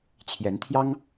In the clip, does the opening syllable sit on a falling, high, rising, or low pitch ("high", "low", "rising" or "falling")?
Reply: rising